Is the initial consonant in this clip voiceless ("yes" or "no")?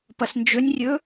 yes